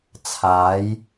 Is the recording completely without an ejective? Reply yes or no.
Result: yes